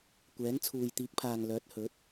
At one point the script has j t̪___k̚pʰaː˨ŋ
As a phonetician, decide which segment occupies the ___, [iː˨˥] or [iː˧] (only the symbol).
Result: iː˨˥